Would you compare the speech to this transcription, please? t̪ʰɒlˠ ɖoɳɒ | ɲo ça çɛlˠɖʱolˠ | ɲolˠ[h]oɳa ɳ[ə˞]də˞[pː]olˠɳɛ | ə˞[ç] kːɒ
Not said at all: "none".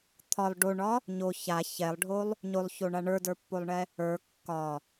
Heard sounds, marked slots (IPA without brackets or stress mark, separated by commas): ç, ə˞, pː, none